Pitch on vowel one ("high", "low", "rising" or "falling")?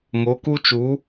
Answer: rising